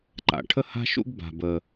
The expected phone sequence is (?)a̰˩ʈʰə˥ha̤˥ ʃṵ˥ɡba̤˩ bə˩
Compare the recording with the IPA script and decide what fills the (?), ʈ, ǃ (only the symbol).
ǃ